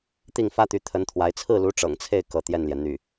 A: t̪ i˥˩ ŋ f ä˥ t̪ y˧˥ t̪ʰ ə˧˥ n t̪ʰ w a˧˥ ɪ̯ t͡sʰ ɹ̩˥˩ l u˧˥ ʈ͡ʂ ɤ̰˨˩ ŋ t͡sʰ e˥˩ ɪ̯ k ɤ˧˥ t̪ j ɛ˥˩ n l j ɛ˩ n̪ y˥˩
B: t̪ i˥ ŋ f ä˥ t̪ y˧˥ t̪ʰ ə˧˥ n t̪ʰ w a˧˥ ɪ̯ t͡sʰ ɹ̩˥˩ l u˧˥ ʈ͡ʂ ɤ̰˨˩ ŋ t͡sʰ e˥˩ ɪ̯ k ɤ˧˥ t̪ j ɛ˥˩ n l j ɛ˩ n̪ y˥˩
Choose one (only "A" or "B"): A